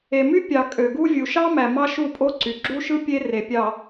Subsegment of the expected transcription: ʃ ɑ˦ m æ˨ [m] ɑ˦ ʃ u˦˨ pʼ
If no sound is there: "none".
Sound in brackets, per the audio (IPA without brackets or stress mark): m